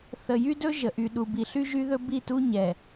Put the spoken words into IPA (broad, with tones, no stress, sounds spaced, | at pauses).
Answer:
θ ə˨ j y˦ d ɵ˦ ʒ ə˨ ʔ y˨ ɗ u˨ b i˨ ɬ y˦ ʒ y˦ ð ɵ˦ b i˦˨ t u˦ ɲ ɛ˨